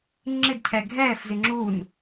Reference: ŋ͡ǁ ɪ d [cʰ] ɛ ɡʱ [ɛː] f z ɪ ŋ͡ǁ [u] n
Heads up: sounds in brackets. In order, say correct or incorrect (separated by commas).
correct, correct, correct